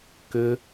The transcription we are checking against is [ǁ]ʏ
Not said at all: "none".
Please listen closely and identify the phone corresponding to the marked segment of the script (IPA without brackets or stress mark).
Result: k